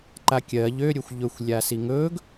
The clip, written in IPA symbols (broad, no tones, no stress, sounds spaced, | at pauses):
ǃ a kʲ ɜ ʎ ø ɾʲ ɵ xʷ ʎ ɵ xʷ lʲ a s i ŋ ɵ ɡ